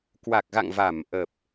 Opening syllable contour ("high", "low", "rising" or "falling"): low